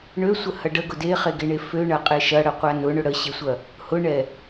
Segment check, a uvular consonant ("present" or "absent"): present